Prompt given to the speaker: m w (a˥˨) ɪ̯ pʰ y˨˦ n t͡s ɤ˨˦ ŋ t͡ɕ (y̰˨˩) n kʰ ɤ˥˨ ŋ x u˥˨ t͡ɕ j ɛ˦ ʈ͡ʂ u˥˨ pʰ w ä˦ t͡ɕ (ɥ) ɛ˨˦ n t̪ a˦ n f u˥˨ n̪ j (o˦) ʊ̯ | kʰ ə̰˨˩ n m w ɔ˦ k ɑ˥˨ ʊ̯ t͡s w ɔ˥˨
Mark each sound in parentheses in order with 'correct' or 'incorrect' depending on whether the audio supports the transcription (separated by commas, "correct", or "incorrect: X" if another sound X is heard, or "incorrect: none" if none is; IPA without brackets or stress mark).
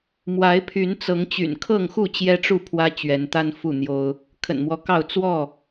incorrect: a˨˦, correct, correct, correct